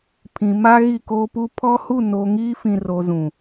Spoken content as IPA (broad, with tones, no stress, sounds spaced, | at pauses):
pʰ ĩ˨ m a˦ ɣ i˦˨ k oː˦ p u˦ pʰ ɔ˦ h u˦˨ n o˨ ŋ iː˦ f ĩ˨ r o˨ z ũ˨